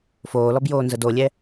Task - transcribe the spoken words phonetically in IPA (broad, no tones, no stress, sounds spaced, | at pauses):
f oː l ɔ b j oː n z ə d o lʲ ɛ